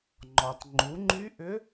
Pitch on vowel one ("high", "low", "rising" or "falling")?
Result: low